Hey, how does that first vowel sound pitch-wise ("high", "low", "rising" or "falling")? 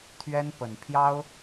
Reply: high